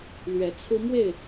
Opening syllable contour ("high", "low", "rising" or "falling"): rising